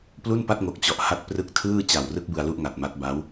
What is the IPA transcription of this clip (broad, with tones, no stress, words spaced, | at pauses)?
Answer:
plu˥˩npa˥˩t̚ŋo˨˩k̚ t͡ɕɔ˨˩ʔha˦˥t̚ prɯ˦˥k̚tʰɯː˥˩ t͡ɕa˨˩wrɯ˦˥k̚ bɯ˧a̯lu˥˩ʔŋa˨˩t̚ma˦˥t̚ ba˦˥w